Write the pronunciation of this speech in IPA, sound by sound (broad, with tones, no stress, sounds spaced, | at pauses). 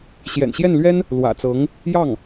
ɕ j ɛ̰˨˩ n ɕ j ɛ˥˩ n l ɥ ɛ˥ n | l w ä̰˨˩ t͡s ɤ˧˥ ŋ | j ɑ˥˩ ŋ